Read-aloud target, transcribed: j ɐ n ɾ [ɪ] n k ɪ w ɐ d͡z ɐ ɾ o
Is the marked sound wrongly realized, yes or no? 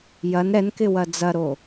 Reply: yes